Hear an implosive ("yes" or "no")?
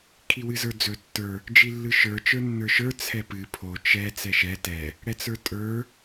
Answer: no